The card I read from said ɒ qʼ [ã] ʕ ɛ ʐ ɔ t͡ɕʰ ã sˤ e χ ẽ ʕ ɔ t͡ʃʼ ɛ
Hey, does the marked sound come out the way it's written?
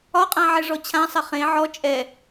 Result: yes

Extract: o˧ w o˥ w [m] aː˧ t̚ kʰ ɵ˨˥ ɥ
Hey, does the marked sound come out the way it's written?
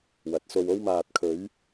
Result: yes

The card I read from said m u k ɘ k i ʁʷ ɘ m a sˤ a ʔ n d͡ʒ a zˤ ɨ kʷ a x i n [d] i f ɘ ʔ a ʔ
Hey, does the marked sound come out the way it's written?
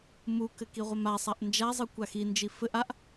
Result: no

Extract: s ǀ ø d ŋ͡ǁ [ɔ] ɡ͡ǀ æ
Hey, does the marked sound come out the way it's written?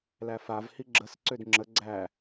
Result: no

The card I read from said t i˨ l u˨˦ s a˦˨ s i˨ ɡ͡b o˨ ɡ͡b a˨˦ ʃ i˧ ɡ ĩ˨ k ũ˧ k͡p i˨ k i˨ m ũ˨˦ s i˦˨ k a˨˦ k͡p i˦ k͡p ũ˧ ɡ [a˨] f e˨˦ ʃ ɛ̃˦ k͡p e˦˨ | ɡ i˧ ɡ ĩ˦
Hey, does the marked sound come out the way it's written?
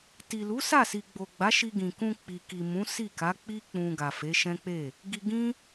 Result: yes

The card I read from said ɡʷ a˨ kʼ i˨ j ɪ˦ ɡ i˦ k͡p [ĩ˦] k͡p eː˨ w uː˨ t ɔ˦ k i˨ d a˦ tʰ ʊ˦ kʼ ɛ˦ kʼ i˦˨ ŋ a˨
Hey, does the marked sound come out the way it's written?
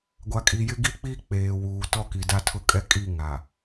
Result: no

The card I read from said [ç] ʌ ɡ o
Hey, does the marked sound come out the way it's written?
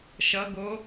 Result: no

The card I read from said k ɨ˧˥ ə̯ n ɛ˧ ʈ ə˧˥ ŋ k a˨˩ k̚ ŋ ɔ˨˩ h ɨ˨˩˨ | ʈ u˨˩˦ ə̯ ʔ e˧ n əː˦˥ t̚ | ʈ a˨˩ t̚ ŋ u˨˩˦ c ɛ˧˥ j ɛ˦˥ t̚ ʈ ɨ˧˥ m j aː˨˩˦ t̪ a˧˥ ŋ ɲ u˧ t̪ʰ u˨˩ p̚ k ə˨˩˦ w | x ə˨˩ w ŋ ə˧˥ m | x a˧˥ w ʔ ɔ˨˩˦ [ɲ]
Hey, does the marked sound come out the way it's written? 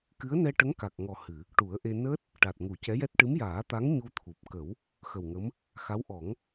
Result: no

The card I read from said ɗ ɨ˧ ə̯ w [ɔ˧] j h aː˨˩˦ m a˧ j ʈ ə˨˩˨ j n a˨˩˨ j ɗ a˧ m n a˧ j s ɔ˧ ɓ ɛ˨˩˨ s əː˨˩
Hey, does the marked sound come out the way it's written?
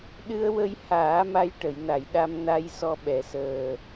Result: no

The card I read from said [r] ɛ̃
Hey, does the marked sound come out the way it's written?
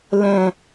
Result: no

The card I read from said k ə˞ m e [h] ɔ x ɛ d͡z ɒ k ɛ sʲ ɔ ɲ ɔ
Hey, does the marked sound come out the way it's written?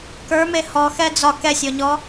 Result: yes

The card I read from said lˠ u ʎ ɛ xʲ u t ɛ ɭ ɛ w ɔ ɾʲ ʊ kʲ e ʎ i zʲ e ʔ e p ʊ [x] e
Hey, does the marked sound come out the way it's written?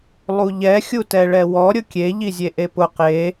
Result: no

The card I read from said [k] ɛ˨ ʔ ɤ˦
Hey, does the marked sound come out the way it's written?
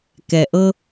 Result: yes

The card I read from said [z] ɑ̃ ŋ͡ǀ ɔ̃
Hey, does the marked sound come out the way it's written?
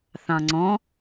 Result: no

